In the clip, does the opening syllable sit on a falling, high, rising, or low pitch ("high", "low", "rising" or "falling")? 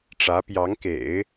rising